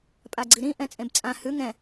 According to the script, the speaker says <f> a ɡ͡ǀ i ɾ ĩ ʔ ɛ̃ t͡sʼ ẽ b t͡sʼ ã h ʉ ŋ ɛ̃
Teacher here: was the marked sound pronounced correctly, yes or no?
no